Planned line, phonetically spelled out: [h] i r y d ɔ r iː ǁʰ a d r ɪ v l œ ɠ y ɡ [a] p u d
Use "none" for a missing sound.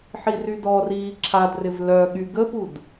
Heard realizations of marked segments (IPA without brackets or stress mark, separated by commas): ħ, ə